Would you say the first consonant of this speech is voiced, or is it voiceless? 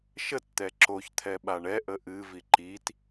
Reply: voiceless